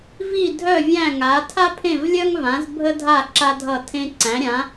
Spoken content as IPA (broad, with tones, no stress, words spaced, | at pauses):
vi˥˨dʱœ˥˨vʲæ̃˥˨ŋa˨˥ tʰa˥pʰẽ˥˨vlʲœ˥ŋvã˨˥z bʱə˥dʱa˥˨ ǁa˥dʱʌ˥˨tʰẽ˥ ǀæ̃˨˥ɾʲã˨˥